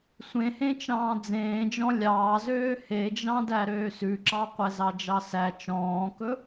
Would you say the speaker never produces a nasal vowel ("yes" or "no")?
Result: no